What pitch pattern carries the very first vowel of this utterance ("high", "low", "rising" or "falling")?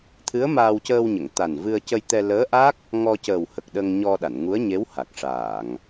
rising